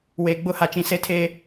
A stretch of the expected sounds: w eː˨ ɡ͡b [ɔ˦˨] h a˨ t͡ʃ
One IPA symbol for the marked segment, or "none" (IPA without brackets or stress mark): ʊ˦˨